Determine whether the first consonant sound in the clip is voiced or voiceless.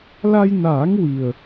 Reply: voiced